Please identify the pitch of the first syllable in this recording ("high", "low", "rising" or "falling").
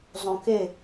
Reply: low